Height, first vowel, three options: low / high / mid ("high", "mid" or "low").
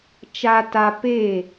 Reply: low